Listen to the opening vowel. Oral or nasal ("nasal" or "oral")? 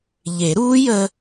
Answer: oral